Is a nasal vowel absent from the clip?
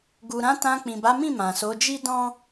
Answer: no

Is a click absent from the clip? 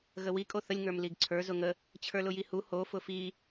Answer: no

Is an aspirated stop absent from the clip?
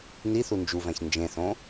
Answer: yes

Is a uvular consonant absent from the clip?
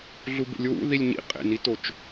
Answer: no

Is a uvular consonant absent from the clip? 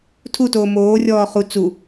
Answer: no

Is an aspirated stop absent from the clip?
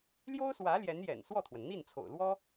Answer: no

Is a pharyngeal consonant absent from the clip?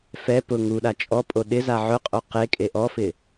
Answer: no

